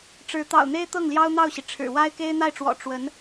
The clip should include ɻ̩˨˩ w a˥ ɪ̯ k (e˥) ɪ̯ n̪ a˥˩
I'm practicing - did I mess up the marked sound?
no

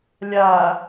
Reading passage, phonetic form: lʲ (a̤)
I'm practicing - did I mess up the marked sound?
yes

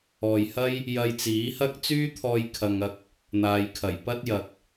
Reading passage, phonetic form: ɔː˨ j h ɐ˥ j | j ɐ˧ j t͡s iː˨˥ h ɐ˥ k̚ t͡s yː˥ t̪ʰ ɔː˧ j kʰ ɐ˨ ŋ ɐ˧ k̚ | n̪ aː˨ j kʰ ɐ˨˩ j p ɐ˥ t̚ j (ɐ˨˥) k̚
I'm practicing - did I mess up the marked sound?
yes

